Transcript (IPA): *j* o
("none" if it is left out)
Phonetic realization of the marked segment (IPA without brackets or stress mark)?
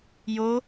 j